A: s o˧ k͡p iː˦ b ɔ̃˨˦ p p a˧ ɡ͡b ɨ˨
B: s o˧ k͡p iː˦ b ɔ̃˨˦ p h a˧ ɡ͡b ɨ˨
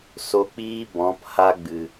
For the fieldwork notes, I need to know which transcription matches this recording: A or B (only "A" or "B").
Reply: B